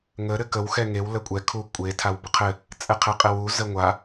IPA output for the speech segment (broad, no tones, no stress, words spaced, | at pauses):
ŋə ɾɘkəw xɛŋew ləkʷʼɛ kʰu kʷʼe tʰawbəqʰɘ | t͡sʼɛqʰeqʼɘwu zəŋʷa